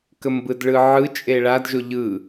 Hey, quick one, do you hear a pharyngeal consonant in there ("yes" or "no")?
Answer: yes